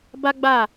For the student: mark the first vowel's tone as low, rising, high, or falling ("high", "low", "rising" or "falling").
high